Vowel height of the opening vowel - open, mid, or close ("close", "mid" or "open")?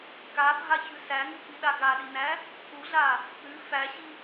open